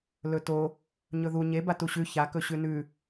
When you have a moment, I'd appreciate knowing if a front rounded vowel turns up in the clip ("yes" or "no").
no